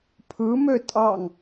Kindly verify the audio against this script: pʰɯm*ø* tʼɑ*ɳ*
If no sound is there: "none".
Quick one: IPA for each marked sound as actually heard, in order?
ø, ŋ

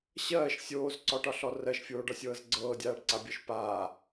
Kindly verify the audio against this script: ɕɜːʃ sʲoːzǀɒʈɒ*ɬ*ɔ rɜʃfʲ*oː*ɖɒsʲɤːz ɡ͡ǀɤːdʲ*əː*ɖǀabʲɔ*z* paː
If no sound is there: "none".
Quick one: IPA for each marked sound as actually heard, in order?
ɬ, oː, aː, ʃ

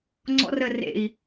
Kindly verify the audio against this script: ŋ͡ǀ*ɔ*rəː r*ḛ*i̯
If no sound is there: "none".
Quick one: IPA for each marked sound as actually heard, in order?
ɔ̰, ḛ

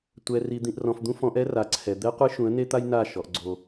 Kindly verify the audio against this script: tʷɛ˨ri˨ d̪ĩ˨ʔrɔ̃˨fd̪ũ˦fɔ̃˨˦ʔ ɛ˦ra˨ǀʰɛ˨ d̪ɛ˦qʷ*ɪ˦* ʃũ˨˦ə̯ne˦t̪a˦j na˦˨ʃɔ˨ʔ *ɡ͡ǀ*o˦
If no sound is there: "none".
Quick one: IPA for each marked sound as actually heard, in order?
ɨ˦, ɡ͡ǀ

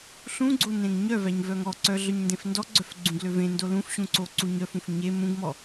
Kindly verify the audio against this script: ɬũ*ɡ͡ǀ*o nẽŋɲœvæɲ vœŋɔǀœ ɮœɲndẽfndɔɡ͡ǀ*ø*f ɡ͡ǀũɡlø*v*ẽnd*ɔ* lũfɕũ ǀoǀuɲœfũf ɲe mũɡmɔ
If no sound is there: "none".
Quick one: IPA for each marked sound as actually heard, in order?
ɡ͡ǀ, œ, v, o

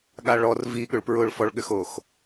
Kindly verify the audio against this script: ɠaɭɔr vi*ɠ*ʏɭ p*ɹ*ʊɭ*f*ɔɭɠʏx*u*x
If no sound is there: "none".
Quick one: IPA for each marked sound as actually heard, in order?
ɠ, ɹ, f, o

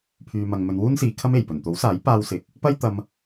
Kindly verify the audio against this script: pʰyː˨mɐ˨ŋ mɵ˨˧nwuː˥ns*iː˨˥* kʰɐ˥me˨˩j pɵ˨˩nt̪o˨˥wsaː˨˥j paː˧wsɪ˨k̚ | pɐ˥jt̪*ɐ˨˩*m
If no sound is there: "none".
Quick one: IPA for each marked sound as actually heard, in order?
iː˨˧, ɐ˧

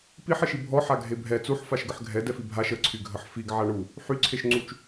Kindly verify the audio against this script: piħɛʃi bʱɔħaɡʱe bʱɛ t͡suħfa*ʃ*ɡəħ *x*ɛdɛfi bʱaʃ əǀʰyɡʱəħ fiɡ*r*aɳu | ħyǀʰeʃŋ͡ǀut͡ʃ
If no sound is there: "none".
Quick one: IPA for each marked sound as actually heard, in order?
ʃ, ɡʱ, ʕ

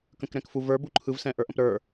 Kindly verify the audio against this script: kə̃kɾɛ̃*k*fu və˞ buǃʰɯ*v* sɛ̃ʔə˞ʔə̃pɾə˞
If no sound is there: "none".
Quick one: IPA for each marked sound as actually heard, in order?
k, v

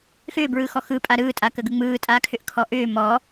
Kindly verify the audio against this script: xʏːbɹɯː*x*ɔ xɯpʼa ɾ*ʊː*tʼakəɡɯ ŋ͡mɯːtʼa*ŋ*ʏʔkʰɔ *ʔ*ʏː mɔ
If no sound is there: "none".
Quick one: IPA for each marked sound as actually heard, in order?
x, ɯː, kʰ, ʔ

